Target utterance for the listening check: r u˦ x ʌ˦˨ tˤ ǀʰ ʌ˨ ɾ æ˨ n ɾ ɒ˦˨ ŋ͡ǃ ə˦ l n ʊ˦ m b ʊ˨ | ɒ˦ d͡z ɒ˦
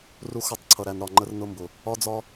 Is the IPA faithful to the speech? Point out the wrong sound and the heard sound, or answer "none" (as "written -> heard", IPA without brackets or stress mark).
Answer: l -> r